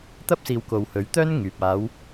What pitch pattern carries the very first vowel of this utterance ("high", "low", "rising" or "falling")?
high